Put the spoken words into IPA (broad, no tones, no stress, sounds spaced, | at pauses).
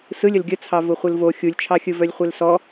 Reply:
s ɯ lʲ ə l ɡʲ ə t͡sʰ ɑ v ʊ χʷ ɯ l v o xʲ u lʲ t͡ʃʰ ɑ xʲ ɯ v œ lʲ χʷ e l s ɔ